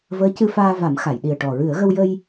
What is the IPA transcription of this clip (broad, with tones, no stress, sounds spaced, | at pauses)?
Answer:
v əː˧˥ c ɨ˧ f aː˧ v a˨˩˦ m x a˨˩˨ j ɗ i˨˩ ə̯ ʈ ɔ˨˩ ɹ ɨ˨˩˦ ə̯ ɣ ə˧ w j ə˧ j